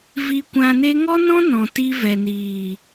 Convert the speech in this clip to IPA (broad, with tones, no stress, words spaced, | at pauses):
vi˧kʷã˧ ne˦ ŋɔ˦nɔ̃˦ nɔ̃˨ti˧vɛ˨niː˨